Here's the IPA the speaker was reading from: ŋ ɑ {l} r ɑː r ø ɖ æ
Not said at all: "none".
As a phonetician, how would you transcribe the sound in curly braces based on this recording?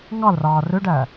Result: l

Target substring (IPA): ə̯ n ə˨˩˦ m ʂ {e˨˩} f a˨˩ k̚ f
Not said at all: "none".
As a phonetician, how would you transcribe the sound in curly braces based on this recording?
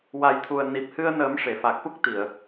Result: e˨˩˨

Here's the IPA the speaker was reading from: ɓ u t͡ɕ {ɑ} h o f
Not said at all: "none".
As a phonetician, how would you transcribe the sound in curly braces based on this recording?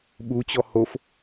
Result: ɔ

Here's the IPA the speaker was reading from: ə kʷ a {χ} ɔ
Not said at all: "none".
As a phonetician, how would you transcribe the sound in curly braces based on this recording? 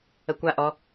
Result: ʔ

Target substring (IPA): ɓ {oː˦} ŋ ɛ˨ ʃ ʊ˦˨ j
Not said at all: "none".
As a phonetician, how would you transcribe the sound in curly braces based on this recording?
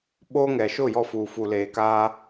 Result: oː˦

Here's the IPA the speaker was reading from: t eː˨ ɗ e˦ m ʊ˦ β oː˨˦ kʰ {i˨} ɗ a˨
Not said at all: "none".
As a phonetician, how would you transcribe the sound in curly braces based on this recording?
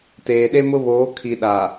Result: i˨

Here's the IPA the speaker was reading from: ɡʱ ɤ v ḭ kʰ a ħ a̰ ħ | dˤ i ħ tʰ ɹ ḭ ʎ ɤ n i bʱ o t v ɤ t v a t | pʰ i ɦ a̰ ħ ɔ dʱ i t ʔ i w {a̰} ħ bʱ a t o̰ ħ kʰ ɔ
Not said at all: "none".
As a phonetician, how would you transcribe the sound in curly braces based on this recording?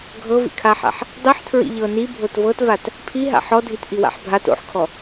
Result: a̰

